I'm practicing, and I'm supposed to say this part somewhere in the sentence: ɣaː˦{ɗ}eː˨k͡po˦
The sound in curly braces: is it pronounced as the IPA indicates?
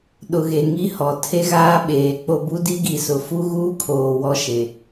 no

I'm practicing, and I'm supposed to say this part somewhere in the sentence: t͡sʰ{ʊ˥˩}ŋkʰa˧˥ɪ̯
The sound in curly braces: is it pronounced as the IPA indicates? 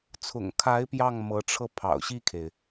no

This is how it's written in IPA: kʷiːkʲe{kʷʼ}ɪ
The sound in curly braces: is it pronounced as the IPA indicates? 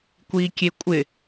yes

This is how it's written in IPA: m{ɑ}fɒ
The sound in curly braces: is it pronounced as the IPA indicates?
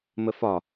no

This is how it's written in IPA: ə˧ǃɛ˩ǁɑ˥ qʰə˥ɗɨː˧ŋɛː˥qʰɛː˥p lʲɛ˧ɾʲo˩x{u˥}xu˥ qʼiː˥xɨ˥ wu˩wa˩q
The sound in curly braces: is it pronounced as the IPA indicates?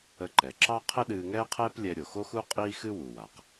no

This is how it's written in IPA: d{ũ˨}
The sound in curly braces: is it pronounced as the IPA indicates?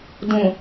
yes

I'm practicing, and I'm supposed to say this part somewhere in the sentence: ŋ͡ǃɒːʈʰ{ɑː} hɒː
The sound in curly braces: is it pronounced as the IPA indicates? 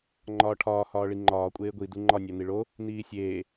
no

